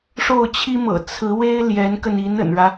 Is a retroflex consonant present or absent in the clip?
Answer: present